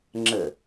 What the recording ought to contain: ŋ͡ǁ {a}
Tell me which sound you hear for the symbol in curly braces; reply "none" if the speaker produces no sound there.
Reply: ə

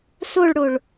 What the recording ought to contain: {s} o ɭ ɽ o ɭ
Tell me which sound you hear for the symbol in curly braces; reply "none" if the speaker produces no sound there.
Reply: s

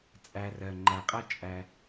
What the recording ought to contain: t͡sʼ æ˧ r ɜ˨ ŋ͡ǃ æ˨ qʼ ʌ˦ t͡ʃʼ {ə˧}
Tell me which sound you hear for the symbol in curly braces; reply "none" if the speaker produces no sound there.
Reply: æ˧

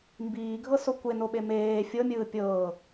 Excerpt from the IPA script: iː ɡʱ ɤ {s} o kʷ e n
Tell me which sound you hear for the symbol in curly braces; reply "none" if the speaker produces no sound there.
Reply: s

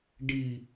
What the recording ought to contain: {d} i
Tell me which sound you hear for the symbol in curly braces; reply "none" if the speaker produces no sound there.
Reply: ɖ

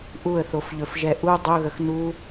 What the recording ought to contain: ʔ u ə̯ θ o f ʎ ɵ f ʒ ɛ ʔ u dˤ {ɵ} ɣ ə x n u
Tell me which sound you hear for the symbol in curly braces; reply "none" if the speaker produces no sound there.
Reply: ɵ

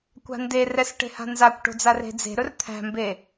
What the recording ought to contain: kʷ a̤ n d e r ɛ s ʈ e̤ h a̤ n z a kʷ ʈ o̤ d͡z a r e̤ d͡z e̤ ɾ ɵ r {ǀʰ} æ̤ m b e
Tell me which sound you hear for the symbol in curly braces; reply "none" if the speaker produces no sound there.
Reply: t̪ʰ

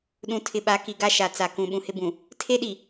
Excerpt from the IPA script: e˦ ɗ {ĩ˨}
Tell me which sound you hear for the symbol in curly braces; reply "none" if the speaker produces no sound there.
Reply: i˨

